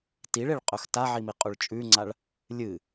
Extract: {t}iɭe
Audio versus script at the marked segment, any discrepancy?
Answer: no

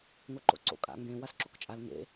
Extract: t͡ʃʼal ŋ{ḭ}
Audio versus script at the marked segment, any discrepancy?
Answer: yes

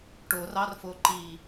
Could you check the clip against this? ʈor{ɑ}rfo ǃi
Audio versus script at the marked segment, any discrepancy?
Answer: no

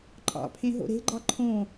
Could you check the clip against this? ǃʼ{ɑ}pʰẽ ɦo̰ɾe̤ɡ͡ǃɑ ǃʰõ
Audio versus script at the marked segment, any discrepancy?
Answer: yes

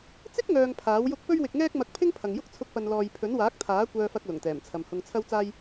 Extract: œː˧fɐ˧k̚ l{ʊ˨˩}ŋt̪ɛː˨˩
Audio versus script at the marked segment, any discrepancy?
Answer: no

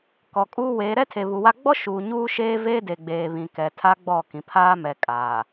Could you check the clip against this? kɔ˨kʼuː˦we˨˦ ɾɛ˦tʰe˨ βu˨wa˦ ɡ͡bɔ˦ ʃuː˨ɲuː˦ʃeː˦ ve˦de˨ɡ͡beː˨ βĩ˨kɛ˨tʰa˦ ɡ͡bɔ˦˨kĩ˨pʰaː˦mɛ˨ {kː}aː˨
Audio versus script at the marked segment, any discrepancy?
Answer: yes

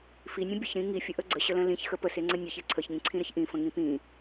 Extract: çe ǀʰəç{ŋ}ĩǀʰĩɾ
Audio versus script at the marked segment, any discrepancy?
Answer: no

